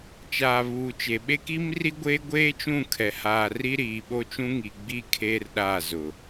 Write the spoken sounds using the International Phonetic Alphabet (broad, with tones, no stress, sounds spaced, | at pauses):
t͡ʃ aː˨ β uː˨ t͡ʃ e˨ ɓ e˦ k i˦ m r i˦ ɡʷ eː˦ ɡʷ eː˦ t͡ʃ ũ˦˨ kʰ ɛ˨ h aː˨ r i˦ ɾ iː˨ ɓ o˦ t͡ʃ ũ˦ ŋ i˨ ɡ͡b iː˦ kʰ eː˦ r ɗ aː˦˨ z ʊ˨